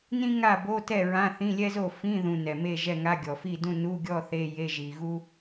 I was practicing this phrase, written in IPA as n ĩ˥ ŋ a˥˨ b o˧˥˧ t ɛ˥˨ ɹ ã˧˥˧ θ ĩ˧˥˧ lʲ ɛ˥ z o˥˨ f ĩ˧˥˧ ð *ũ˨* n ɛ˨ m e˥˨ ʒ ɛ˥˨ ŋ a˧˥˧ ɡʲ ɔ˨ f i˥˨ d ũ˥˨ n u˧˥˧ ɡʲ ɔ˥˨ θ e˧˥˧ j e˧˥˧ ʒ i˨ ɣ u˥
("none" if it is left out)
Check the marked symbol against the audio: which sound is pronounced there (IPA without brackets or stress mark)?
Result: ũ˨